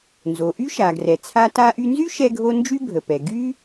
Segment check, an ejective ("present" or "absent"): absent